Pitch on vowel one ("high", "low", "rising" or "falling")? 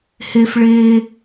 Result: high